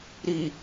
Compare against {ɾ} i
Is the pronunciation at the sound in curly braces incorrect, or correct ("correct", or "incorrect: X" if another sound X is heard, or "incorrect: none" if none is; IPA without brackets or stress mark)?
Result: correct